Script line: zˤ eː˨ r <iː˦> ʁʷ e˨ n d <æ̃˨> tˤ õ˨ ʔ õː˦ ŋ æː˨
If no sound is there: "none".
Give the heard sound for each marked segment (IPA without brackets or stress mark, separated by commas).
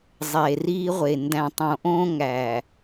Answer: iː˦, æ̃˨